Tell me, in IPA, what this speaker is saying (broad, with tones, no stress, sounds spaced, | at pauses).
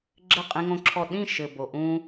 ɡ͡ǁ ɘ˦˨ qʼ ĩ˦ ŋ õ˦ ǁʰ ɔ˦˨ ɗ ĩ˦˨ ʃ ɘ˨ b o˨ ʔ ũ˦